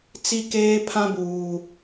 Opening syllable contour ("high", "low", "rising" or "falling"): high